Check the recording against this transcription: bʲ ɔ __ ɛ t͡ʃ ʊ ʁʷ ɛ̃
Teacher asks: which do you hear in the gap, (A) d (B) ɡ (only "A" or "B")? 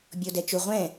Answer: A